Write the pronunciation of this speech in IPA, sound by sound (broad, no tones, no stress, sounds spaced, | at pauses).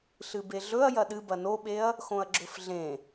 ɬ ɨ b e ɮ ɵ ɐ̯ j ɐ ɗ ɨ b ɐ n o ɓ e ɐ̯ | x õ ɐ̯ ɡ͡ǁ ɵ f ɮ ẽ